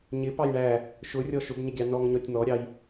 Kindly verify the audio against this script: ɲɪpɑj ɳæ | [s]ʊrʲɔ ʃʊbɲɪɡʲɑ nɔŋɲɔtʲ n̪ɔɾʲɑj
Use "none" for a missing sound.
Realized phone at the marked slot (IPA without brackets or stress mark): ʃ